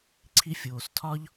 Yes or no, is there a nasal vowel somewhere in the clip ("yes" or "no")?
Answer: no